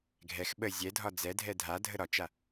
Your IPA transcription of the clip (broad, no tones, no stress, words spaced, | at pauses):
ɡʱɛx ɓə zʲɛdʱɒ d͡zɛdʱɛ dʱadʱə ɾɒt͡ʃa